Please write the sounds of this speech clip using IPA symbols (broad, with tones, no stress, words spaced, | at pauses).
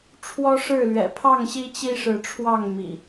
ʈ͡ʂʰwɔ˦ʂɻ̩˥˨lɥɛ̰˨˩ pʰɑ˥˨ŋɕi˦ t͡ɕi˦ʂɻ̩˨˦ʈ͡ʂʰwɑ˥˨ŋ mḭ˨˩